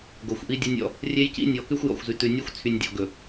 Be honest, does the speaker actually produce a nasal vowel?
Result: no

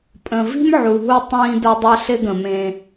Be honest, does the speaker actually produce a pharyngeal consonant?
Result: yes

